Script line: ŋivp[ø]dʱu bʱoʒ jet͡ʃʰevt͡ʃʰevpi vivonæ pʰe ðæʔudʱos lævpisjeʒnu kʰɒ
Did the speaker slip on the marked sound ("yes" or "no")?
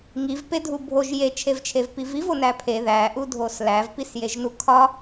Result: yes